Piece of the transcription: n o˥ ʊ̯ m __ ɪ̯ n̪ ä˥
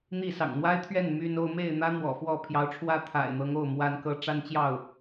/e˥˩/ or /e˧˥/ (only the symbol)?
e˥˩